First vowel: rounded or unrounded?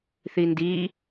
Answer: unrounded